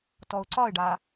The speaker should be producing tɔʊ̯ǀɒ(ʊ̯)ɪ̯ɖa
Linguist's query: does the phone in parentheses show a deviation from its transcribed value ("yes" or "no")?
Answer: yes